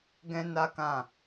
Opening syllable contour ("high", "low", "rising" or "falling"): high